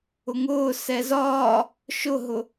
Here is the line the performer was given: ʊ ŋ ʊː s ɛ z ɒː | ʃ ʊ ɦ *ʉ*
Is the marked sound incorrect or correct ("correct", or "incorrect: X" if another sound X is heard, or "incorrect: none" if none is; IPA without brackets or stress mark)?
incorrect: ʊ